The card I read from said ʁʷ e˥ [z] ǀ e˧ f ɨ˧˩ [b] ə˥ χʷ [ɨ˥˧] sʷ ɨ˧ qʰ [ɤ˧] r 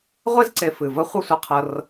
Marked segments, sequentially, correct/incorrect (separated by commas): correct, incorrect, correct, correct